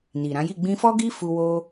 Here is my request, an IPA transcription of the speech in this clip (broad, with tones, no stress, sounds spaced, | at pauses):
n i˨ ɾ ã˨˦ j i˦˨ ɡ͡b ĩ˧ f ɔ˦ ɡ i˦ f u˧ w o˧